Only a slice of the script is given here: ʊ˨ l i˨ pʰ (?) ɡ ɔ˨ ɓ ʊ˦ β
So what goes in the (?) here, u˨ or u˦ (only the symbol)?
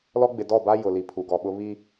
u˨